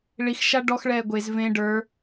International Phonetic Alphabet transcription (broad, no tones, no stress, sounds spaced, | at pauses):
ɭ i x ʃ a ɖ ɔ x ɭ ɛː ɡʷ e z v ẽ ɖ ə˞